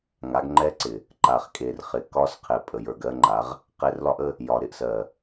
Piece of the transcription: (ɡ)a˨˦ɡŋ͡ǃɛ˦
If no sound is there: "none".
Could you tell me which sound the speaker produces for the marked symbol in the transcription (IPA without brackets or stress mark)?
ŋ